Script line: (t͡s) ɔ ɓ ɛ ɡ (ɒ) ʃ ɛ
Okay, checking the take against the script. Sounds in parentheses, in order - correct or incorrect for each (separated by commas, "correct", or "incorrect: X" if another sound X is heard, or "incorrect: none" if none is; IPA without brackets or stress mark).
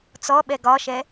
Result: correct, correct